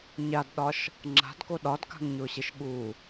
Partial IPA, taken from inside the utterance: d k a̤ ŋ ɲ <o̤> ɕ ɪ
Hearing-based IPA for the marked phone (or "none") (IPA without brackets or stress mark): o